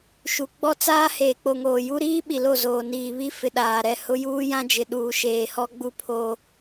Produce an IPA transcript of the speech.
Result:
ʃ u˨ ɡ͡b ɔ˦ t͡s aː˦ h eː˨ k͡p o˨ ŋ oː˨ j u˦ ɾ iː˦ ɓ i˨ l o˦˨ z oː˨ n iː˨ β i˦ f ɪ˨ ɗ aː˨ ɾ ɛ˦˨ h ʊ˦ j uː˦ j ã˦ d͡ʒ ɪ˨ ɗ uː˨ ʃ eː˨ h ɔ˦ ɡ͡b u˦ pʰ o˦

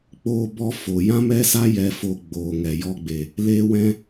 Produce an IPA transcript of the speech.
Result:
k͡p oː˧ b ɔ˧ f o˨ j ã˦ m ɛ˦ s a˦ j ɛ˧ f oː˧ ɡ͡b oː˨ ŋ ɛ˨ j ɔ˧ ɡ͡b e˨ | l eː˦ w ɛ̃˦

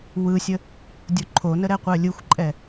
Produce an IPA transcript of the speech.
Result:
w ɯ sʲ ə | dʲ o ǃʰ o n ə ɾ ɛ qʷ ɜ lʲ ɯ xʷ ǃʼ ɛ

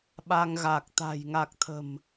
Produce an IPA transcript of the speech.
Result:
ɓ a˧ ŋ ɣ a˨˩ k̚ t̪ a̤˨˩ j ŋ a˨˩ k̚ t̪ʰ ə̤˨˩ m

